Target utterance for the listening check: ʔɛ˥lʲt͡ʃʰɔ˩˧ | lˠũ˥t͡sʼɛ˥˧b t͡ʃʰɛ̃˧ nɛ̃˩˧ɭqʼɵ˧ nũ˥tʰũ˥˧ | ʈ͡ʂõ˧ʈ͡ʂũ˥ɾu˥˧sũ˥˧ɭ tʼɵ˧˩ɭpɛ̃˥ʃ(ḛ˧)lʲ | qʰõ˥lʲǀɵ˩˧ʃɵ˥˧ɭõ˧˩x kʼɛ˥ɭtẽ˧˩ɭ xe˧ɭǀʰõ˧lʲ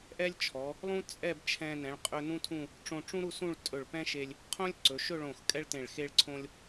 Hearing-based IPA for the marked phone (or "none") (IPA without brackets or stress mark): e˧